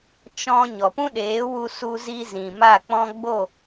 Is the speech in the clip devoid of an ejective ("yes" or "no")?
yes